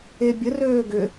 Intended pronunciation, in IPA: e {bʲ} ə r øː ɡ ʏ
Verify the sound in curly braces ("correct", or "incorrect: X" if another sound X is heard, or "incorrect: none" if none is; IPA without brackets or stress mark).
correct